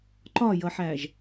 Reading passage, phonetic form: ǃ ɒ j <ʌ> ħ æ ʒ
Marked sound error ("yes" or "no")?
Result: no